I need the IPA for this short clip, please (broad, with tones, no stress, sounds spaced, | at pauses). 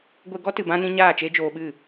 ɡʷ e˧ ɡ ɔ˦ t ɨ˨ b ã˧ n ĩ˧ ɲ aː˦˨ t͡ʃ e˦ d͡ʒ oː˧ ɓ ɨ˦˨